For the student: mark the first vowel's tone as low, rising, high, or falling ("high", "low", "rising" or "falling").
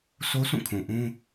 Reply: high